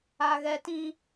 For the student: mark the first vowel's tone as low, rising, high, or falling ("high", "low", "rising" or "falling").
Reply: high